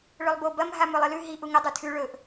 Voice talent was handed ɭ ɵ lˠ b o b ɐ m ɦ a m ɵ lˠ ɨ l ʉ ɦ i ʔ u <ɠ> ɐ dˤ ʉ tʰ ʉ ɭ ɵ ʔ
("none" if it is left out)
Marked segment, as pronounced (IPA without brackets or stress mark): ŋ